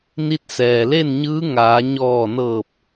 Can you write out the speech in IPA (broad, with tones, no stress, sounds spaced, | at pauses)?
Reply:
n i˧ t̚ s ɛː˩ l e˥˨ n ɲ ɯː˧˥ ŋ aː˩˧ ɲ ɔː˧˩ n ɤː˧˩ p̚